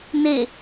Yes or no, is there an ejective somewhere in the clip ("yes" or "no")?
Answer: no